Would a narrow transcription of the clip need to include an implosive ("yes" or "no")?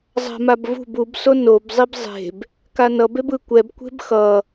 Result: no